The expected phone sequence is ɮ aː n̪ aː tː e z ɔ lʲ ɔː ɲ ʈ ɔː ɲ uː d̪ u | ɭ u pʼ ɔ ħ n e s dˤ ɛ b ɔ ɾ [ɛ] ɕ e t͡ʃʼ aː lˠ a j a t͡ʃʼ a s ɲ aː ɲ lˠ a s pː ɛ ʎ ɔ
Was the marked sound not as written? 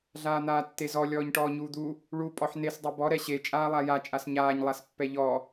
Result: no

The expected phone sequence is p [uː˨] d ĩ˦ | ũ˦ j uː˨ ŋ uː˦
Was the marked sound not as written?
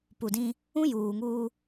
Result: yes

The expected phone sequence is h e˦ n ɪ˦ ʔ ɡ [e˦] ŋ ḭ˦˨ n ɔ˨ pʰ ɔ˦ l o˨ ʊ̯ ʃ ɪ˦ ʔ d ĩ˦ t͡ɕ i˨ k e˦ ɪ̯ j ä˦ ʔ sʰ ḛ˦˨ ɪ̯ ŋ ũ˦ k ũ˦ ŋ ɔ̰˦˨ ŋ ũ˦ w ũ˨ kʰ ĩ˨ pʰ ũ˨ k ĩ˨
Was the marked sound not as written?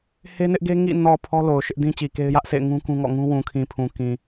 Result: no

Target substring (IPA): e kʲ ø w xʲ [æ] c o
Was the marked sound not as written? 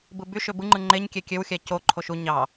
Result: no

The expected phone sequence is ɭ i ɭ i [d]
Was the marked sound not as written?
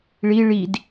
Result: no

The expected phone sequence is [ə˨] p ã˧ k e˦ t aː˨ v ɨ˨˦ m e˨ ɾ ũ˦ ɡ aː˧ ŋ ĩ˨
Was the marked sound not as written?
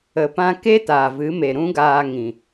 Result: no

